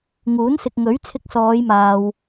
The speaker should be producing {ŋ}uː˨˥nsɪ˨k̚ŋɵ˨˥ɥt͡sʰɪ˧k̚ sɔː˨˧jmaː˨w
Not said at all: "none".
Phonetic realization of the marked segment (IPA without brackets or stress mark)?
ŋ